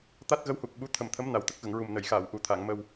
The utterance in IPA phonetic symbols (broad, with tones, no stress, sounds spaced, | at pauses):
t̪ a˦˥ t̚ ɣ ə˧˥ w h u˨˩ k̚ ɓ u˧˥ t̪ʰ ə˨˩ m t̪ʰ ə˧˥ m n a˨˩ w t̪ ə˦˥ k̚ ɣ ə˨˩˨ ŋ ɹ u˨˩ m n ə˨˩˨ j x aː˨˩˨ w ʔ u˨˩˦ t̪ʰ a˨˩˨ ŋ m ə˧ w